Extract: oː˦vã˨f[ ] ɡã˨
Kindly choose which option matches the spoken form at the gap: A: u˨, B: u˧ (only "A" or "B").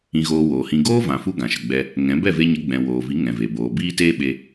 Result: B